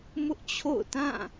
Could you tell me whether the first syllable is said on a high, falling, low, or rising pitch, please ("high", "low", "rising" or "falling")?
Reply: high